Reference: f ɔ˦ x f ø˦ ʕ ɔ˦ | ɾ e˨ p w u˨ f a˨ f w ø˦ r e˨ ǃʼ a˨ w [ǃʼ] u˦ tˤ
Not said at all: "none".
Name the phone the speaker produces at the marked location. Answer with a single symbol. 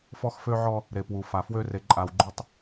ɡ͡ǃ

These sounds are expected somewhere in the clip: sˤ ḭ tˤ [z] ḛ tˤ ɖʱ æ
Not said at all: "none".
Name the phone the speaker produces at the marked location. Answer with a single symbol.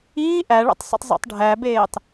zˤ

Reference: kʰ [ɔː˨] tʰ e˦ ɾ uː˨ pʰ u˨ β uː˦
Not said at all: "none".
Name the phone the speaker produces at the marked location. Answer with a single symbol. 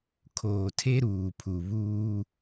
oː˨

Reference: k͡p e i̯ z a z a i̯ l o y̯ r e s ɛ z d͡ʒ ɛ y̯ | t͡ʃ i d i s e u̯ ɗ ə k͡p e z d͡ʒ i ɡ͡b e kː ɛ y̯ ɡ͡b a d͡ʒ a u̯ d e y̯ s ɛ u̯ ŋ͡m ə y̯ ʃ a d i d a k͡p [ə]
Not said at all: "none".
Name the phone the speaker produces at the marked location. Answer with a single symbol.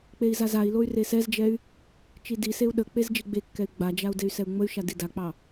ɑ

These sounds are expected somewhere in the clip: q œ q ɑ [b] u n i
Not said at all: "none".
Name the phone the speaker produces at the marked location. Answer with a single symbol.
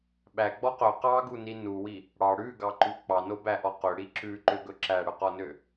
ɡ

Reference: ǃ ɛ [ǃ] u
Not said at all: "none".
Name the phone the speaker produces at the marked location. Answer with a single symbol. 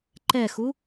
x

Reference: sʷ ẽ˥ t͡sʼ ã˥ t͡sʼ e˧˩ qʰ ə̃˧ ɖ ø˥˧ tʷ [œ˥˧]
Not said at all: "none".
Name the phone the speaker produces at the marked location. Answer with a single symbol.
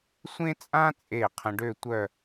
œ˥˧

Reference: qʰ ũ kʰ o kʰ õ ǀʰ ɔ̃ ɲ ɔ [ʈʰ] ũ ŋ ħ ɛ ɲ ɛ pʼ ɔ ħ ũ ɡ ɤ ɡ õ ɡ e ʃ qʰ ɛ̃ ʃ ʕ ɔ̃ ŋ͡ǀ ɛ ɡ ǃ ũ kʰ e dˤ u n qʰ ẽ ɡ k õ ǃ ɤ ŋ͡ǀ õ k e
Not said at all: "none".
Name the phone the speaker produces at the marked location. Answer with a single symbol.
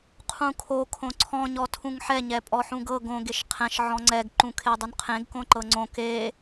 tʰ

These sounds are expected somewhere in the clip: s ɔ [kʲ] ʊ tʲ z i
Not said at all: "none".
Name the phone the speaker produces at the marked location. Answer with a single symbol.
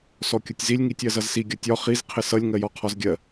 kʲ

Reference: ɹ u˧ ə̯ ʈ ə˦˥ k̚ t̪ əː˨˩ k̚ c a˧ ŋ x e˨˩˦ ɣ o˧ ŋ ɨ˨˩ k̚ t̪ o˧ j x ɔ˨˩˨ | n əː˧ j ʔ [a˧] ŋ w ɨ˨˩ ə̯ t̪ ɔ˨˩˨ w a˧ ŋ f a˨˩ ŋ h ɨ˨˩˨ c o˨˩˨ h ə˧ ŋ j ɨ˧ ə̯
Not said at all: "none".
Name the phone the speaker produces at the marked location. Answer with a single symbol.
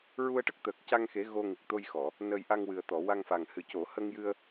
a˧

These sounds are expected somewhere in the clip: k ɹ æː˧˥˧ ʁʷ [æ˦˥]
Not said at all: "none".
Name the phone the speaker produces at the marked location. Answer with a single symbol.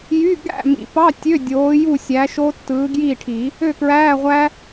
æ˦˥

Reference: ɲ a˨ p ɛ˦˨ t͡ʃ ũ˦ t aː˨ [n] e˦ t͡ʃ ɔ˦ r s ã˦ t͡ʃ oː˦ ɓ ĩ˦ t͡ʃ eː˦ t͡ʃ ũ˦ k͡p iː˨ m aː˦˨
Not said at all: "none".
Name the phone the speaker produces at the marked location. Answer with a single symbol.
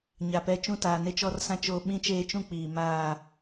n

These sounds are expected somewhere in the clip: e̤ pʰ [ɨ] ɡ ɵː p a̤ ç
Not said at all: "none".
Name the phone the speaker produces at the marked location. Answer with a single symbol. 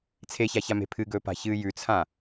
ɨ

